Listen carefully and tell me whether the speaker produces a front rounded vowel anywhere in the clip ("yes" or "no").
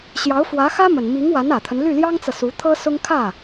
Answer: yes